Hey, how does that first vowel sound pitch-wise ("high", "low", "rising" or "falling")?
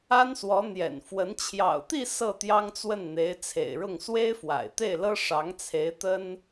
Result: high